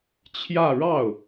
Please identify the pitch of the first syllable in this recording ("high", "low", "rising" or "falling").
falling